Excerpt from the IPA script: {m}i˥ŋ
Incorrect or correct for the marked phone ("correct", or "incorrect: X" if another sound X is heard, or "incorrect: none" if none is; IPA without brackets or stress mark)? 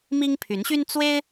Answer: correct